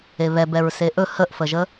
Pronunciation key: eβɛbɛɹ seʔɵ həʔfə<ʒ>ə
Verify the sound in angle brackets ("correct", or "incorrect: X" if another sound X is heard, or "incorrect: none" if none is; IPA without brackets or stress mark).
correct